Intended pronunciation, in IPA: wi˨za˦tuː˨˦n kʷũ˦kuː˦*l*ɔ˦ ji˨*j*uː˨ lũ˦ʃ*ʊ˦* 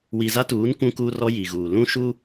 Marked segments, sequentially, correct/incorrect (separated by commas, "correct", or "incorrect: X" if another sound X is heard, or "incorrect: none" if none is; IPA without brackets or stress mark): incorrect: r, incorrect: ɣ, incorrect: u˦